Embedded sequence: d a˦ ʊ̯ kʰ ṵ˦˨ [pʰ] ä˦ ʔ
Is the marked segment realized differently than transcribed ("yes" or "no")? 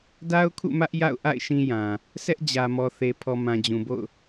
yes